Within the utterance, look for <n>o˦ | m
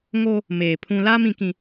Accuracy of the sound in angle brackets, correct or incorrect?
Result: incorrect